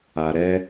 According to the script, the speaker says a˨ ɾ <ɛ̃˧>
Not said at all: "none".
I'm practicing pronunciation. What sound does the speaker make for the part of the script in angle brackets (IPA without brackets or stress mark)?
ɛ˧